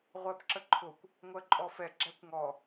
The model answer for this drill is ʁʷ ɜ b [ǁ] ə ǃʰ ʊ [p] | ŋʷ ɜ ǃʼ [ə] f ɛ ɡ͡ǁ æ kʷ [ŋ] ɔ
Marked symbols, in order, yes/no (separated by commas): yes, no, no, yes